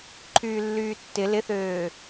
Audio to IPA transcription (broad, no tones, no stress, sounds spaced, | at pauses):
ǃʰ yː lː yː tː ɪ l ɪ θ øː